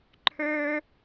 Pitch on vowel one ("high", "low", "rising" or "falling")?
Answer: high